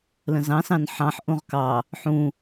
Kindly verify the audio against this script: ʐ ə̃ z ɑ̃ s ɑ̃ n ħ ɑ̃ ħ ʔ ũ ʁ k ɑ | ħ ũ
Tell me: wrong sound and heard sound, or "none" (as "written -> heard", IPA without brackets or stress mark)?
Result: ʐ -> l